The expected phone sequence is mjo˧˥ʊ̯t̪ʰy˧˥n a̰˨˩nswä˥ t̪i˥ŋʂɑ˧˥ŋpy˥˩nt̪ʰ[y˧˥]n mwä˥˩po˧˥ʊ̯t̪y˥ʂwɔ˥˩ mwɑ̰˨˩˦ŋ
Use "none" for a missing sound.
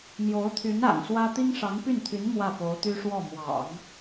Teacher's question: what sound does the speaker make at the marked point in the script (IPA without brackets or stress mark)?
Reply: y˧˥